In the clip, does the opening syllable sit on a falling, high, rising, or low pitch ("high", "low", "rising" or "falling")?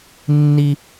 high